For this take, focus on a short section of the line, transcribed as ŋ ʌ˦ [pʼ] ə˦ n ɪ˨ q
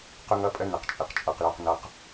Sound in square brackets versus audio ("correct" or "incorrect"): correct